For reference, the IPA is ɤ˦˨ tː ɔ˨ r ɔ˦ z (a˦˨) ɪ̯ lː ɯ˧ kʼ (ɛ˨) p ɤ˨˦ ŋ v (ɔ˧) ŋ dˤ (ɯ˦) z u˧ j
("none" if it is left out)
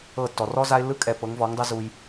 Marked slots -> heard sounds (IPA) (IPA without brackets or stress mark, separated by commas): a˧, ɛ˨, ɔ˨˦, ɯ˦